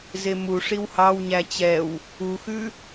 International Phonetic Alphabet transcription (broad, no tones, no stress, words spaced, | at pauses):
zemu ʂiwhɑwɲæ t͡ɕɛw | uxʉ